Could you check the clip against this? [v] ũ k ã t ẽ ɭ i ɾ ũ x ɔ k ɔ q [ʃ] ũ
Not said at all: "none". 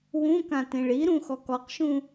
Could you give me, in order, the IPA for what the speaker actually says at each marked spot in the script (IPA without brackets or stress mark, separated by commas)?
w, ʃ